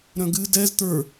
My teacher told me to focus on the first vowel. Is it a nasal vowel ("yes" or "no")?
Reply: yes